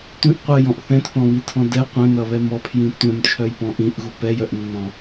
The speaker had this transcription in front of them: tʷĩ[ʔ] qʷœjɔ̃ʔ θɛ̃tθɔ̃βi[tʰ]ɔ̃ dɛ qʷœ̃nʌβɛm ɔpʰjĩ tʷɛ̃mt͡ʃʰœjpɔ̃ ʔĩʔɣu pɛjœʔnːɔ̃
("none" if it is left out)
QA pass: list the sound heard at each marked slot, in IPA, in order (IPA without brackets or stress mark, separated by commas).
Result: ʔ, tʰ